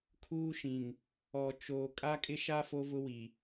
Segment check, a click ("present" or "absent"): absent